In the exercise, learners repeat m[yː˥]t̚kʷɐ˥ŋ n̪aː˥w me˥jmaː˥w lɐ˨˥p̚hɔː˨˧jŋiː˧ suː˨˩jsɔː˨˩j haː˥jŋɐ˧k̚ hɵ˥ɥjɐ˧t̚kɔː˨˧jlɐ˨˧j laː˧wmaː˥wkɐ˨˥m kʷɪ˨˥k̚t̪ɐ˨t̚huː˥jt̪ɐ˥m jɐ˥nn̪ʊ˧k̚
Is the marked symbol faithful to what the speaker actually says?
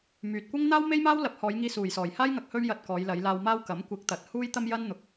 no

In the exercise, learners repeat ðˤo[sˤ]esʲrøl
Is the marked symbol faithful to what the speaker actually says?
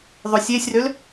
no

